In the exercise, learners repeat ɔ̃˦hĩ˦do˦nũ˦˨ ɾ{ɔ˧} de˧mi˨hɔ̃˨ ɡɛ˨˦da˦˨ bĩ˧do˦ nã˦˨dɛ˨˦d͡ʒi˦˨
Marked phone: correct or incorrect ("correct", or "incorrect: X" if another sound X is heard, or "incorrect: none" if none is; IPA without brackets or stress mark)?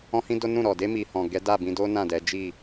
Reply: incorrect: ɔ˨